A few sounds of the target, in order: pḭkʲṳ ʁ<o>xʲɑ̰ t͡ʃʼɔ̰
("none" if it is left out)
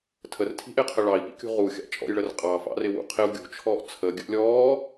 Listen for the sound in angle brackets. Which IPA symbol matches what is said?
u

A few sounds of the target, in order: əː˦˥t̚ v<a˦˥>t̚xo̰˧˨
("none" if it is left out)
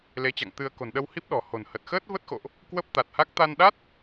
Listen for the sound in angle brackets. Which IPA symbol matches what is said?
ə˦˥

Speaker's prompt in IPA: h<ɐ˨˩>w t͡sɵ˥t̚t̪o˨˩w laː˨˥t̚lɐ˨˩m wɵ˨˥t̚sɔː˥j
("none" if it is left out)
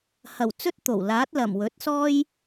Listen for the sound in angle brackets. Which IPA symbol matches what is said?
ɐ˨˩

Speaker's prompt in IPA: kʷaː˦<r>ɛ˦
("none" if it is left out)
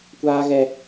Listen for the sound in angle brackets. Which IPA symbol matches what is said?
ɣ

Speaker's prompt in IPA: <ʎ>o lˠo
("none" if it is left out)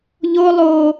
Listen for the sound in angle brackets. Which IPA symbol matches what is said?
ʎ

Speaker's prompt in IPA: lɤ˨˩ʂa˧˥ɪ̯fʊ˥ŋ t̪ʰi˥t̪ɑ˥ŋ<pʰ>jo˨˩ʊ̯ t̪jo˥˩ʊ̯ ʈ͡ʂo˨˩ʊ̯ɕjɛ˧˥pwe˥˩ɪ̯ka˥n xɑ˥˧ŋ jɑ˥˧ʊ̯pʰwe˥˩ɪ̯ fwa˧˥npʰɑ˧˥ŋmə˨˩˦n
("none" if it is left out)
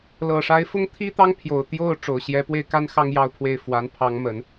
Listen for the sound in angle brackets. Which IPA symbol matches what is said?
pʰ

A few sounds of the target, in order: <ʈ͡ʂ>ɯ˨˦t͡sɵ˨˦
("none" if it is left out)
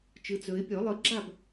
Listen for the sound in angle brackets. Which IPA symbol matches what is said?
t͡ʃ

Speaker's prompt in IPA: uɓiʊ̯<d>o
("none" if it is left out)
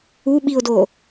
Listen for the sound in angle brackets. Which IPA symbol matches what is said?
d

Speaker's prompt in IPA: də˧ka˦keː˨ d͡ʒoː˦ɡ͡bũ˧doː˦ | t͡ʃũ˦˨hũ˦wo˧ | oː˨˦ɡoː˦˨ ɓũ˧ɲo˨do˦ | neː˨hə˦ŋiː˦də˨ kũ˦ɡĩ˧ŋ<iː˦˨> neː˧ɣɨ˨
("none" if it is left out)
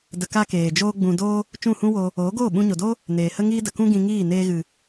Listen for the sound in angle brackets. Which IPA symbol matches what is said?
iː˦˨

